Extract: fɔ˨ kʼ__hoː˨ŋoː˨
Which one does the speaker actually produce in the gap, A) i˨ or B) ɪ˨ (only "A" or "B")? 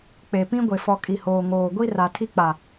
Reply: A